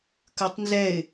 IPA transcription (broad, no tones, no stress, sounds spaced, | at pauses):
k ə˞ tˤ n z ɛ ɪ̯